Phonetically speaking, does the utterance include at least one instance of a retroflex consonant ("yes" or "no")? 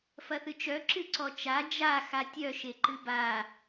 no